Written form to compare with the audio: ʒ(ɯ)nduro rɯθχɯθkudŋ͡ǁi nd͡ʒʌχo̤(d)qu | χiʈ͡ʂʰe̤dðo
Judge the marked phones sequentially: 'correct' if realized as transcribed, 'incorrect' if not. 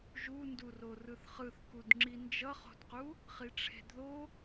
incorrect: u, correct

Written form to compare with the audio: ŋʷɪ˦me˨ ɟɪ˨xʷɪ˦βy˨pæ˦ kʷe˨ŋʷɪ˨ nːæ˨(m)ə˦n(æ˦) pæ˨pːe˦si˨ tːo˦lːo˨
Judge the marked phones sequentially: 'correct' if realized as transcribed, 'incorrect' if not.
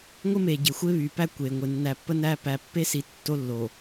incorrect: pː, correct

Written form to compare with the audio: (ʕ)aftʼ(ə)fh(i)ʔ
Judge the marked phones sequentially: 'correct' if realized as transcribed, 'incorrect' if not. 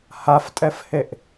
incorrect: h, incorrect: ɛ, incorrect: e

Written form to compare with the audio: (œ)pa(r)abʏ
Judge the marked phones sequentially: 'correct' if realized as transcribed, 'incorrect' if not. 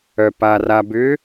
correct, correct

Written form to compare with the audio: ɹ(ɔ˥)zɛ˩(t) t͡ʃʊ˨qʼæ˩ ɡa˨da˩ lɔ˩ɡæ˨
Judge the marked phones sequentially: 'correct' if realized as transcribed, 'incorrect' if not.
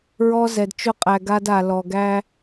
incorrect: ɔ˨, incorrect: d

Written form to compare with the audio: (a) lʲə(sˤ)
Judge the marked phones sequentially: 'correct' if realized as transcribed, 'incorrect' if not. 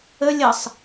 incorrect: ə, correct

